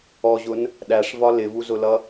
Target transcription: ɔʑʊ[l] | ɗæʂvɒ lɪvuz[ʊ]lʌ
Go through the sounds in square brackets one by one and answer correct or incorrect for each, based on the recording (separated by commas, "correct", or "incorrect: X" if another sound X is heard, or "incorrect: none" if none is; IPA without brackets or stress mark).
incorrect: n, correct